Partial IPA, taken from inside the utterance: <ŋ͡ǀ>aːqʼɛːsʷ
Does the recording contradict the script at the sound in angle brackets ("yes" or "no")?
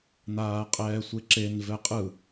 yes